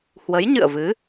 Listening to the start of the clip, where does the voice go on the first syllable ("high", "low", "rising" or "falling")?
rising